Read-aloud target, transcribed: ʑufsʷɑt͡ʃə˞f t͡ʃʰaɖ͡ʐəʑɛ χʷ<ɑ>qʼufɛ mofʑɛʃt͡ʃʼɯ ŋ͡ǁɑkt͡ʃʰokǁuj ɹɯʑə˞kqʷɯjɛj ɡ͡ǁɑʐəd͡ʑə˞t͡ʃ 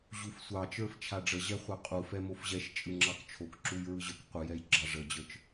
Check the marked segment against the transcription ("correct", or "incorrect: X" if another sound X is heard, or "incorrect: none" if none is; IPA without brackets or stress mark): correct